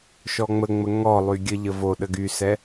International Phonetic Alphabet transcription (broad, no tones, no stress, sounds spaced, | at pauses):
ʃ ɔ ŋ͡m ə ŋ͡m ə ŋ ɔ lˠ y ɡʲ ə ʎ ə v o ɗ ə ɡ y s ɛ